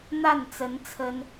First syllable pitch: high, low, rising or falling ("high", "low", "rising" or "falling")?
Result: falling